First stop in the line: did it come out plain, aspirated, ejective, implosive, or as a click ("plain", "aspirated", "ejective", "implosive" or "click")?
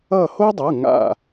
plain